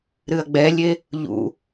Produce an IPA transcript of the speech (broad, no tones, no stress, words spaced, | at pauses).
ɾɨɐ̯ɡ͡bɛlʲe | ʎṵ